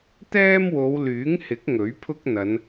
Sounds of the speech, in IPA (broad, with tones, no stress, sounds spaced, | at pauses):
t̪ ɛː˥ m w o˨˧ w l yː˨˥ ŋ h ɪ˨˥ k̚ ŋ ɵ˨˥ ɥ pʰ ʊ˥ k̚ n̪ ɐ˨˧ n